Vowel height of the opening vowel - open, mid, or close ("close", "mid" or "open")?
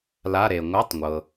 open